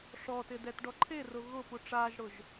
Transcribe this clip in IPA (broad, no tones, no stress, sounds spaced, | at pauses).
ʂ ɔ t ɪ d ɛ t ɖ ɔ ǃʰ e r ʊ ɣ ʊ p u ʈ͡ʂ aː ʒ ɽ ʊ ʒ